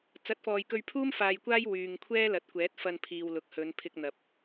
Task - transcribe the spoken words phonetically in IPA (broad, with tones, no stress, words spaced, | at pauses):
t͡sɐ˨˥t̚fɔː˨jkɵ˧ɥpʰuː˥m faː˧jkʷaː˥j wyː˨ŋkʷʰɛː˥lɐ˨t̚kʷɛː˨˥t̚ fɐ˧npʰiː˨wlʊ˨k̚ hɵ˨˧npʰɪ˧k̚n̪ɐ˨p̚